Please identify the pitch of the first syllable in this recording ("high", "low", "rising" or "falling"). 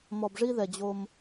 low